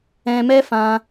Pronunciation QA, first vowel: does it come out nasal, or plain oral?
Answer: nasal